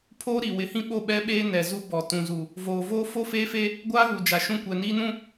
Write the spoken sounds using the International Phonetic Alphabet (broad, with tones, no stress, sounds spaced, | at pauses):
pʰ oː˦ ɾ i˨ w ɪ˨˦ h ĩ˦ ɓ o˦˨ ɓ ɛ˦ ɓ eː˦ n ɛ˨ z u˦ b ɔ˨ t ũ˨ z u˨ | v oː˨ v oː˦ f o˦ f eː˦ f e˦ | ɡʷ aː˦ ɣ u˨ d͡ʒ a˨ ʃ ũ˦˨ kʷ ɛ˨ n iː˦ n ũ˦